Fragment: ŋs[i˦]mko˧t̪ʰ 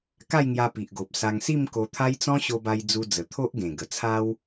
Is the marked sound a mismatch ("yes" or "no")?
yes